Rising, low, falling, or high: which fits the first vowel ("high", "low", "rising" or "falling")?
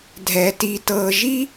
low